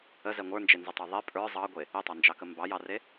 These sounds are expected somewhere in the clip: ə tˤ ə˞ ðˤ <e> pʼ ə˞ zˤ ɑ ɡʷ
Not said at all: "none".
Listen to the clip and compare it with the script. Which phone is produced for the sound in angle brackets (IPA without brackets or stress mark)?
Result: e